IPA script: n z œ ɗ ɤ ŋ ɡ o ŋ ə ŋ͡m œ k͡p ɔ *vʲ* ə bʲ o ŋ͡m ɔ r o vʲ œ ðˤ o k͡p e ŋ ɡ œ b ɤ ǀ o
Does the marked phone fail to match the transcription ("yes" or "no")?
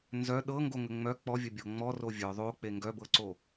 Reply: no